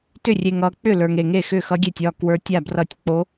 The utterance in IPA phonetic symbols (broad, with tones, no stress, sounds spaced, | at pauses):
t ʏ˥˩ rʲ e˨ ŋ ʌ˨ k͡p ʏ˥˩ l ə˞˨ ŋ e˨ ŋ e˥˩ x ʏ˥˩ x ʌ˧˥ ɡʲ e˥˩ tʲ ɒ˥˩ k w ə˞˧˥ tʲ a˥˩ b r ʌ˥˩ tʲ k͡p o˧˥